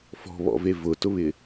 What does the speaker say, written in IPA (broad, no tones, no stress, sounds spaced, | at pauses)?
f ɔ̤ β ɔ̰ v e v ʊ t ʊ β ɪ